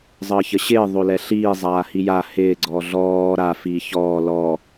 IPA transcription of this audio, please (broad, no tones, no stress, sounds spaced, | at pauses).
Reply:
zˤ əː ç ə ɕ ɪː ðˤ o l ɛ ɬ iː zˤ aː h i j a h ɪː ɡ͡ǀ ɔ ɮ ɔː ɾ a f iː ç ɔː l ɔ